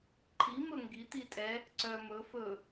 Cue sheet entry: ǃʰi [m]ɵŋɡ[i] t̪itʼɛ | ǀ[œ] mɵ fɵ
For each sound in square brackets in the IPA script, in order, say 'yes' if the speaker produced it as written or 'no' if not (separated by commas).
yes, yes, yes